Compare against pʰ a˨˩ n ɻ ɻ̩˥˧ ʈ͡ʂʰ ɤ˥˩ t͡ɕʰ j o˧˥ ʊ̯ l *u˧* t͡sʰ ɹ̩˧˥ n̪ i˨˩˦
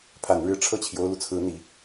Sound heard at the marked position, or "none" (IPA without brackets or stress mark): u˧